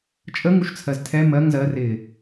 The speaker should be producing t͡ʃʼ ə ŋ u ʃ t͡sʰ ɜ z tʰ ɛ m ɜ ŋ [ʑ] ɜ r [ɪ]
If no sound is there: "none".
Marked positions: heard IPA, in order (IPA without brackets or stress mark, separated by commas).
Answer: z, ɪ